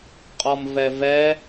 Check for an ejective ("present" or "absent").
present